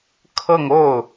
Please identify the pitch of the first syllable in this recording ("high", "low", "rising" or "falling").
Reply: falling